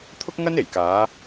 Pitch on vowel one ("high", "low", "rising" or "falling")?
high